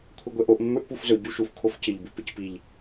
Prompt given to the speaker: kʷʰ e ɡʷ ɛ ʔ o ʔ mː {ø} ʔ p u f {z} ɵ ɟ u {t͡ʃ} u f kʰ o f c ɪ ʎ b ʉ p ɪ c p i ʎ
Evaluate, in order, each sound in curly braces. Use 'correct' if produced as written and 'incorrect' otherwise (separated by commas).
incorrect, correct, incorrect